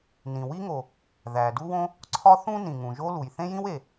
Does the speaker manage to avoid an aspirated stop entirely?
no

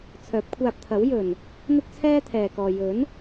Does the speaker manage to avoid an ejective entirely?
yes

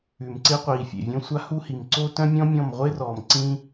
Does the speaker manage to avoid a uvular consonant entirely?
no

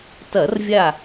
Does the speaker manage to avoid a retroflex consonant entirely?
yes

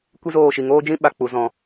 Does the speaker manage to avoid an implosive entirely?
no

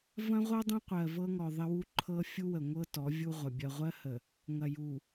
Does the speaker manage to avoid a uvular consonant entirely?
no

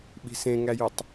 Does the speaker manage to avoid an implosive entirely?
no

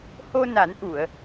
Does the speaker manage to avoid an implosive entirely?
yes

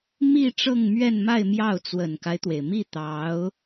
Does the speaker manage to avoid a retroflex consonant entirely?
no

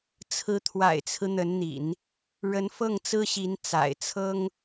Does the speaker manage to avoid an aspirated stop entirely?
no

